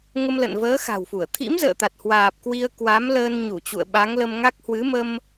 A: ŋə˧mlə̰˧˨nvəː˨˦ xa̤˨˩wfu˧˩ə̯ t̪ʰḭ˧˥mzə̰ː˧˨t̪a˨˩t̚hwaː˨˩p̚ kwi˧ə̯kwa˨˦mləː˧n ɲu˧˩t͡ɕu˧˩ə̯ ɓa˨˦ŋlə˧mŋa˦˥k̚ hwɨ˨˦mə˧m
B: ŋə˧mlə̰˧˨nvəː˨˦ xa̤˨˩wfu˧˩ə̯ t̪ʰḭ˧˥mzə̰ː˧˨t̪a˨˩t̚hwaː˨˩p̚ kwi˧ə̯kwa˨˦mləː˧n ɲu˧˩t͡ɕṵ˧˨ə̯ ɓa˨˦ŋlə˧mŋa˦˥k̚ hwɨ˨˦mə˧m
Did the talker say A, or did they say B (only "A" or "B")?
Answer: B